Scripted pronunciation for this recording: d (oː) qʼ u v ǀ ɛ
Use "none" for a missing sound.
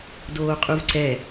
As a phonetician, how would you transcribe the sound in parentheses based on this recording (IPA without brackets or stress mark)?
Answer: oː